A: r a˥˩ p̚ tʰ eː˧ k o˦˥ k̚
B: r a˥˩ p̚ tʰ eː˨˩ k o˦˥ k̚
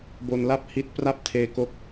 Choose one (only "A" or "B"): A